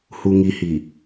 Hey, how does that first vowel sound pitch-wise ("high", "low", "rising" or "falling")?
low